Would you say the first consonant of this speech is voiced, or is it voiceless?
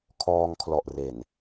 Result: voiceless